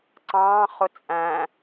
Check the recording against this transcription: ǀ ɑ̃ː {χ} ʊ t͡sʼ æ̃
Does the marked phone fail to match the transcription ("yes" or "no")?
no